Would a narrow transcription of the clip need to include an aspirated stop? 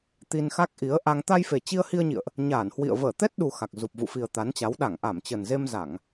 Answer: no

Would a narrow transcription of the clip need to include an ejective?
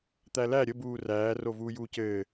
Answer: no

